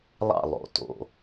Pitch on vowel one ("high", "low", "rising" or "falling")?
falling